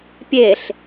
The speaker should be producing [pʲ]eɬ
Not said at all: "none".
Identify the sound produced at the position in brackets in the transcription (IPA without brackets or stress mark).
pʲ